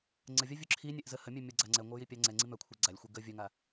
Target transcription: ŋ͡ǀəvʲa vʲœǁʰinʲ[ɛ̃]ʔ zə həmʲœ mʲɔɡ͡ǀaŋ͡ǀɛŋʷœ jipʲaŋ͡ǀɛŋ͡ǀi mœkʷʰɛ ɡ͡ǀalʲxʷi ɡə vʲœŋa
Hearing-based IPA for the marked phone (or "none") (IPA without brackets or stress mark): ɛ